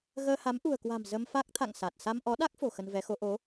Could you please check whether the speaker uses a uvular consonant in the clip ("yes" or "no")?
no